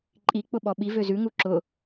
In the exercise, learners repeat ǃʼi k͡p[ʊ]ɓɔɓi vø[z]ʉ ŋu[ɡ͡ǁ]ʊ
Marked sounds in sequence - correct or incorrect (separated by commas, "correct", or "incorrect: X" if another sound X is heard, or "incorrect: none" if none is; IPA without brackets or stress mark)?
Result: correct, correct, incorrect: ǁ